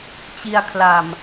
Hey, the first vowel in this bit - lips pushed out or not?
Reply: no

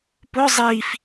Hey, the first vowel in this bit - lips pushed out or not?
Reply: yes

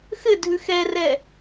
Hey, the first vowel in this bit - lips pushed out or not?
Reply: no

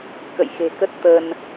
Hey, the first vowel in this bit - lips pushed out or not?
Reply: no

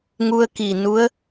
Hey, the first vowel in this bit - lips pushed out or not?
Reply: yes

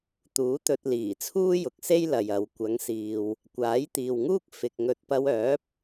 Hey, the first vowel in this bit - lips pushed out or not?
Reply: yes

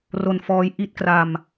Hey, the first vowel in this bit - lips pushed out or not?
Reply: yes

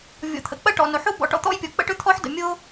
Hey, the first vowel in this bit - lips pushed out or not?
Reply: yes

